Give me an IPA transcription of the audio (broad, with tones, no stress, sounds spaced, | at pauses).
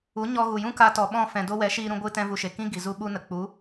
u˨˦ ɲ ɔ˧ ɣ u˨ j ũ˦ k a˧ t ɔ˨ ɓ ɔ̃˦˨ f ɛ̃˨ d o˧ w ɛ˨˦ ʃ iː˦ ɾ ũ˦ ɡʷ ɨ˦ t ɛ̃˦ v u˧ ʃ e˨ k ĩ˦ ɡ i˨ z u˦ ɓ u˦ n ə˨ k͡p u˨˦